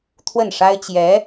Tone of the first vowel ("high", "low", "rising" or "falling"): falling